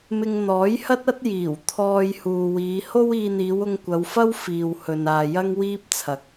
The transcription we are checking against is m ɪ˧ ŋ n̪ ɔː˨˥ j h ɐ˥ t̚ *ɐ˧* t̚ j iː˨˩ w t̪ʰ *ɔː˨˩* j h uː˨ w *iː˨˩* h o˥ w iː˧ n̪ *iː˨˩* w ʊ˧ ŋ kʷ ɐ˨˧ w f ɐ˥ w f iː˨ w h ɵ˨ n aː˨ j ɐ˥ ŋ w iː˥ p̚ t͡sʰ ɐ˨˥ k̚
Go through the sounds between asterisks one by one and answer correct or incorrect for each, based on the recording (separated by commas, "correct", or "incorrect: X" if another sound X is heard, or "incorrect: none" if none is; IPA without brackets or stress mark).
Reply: incorrect: ɐ˥, incorrect: ɔː˧, incorrect: iː˨˧, incorrect: iː˨˧